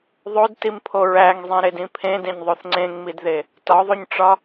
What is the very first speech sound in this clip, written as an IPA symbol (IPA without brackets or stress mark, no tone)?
ðˤ